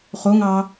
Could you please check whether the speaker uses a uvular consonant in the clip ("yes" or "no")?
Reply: yes